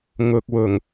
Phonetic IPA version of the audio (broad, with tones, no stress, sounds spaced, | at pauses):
ŋ ʊ˨ k̚ w ʊ˨˩ ŋ